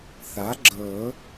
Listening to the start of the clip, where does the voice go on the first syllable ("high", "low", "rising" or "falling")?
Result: rising